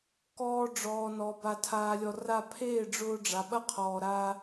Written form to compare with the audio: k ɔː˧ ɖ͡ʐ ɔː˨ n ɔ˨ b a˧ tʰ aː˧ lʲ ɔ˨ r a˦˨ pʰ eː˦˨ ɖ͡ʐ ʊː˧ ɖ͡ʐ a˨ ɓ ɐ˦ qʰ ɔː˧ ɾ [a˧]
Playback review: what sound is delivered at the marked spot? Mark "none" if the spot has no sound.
a˦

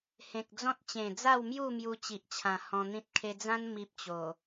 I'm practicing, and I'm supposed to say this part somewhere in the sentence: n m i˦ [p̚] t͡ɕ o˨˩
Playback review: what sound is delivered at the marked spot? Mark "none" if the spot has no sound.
p̚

